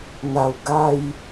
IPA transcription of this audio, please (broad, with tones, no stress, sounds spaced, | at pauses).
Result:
n̪ a˨˩ w ɡ a˥˧ j